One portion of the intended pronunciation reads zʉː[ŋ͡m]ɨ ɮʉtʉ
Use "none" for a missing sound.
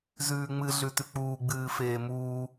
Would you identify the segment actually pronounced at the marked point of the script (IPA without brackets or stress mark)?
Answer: ŋ͡m